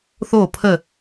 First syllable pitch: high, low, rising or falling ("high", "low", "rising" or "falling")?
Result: falling